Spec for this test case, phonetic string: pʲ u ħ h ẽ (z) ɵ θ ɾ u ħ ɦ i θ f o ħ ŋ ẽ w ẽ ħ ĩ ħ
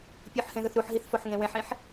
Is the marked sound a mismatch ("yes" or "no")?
yes